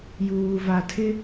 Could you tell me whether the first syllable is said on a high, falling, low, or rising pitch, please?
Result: low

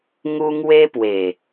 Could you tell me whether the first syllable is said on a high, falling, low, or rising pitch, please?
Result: high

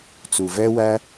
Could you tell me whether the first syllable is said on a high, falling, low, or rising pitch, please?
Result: low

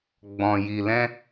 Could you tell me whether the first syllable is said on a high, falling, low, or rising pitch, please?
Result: low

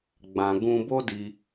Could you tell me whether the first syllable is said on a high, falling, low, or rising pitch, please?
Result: low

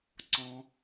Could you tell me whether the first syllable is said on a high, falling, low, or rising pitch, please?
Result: high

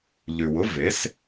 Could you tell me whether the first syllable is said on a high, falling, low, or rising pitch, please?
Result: low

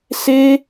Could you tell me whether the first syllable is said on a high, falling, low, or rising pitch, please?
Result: high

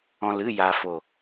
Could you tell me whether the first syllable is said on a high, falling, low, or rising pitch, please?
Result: low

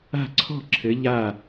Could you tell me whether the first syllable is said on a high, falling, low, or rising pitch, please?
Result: falling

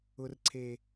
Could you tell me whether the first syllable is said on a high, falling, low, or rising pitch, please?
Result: low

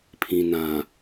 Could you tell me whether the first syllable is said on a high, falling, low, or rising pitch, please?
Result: low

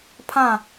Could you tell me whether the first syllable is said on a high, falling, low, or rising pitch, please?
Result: falling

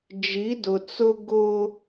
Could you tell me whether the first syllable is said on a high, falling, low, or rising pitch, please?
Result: rising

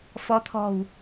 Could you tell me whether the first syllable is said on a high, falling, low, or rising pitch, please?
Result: rising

